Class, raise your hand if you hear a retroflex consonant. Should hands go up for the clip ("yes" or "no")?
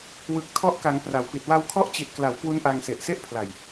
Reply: no